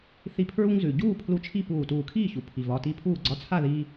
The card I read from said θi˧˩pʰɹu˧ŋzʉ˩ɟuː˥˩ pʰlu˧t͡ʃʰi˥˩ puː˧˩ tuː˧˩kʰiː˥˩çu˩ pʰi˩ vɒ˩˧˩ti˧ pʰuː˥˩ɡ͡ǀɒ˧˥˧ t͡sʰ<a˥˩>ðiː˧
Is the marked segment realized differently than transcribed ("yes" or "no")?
no